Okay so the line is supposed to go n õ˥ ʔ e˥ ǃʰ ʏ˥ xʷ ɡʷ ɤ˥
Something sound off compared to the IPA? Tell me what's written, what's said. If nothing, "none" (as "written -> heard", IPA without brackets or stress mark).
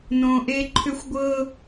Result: none